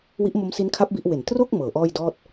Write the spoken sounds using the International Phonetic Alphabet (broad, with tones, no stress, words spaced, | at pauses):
wi˦˥ʔmo˦˥msi˦˥nkʰa˦˥p̚ bi˦˥ʔwe˨˩n tro˥˩k̚ mɤː˩˦ʔɔː˥˩jdɔː˥˩t̚